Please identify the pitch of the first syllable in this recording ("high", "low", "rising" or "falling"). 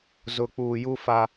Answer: low